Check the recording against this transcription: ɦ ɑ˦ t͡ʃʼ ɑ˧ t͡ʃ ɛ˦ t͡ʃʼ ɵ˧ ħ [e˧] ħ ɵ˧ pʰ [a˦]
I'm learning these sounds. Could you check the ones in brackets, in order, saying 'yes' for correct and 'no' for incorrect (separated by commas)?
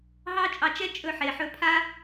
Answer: no, yes